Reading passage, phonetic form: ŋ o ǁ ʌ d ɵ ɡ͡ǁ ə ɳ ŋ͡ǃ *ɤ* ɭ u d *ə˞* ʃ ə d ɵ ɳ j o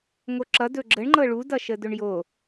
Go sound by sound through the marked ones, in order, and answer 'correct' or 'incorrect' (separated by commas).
correct, incorrect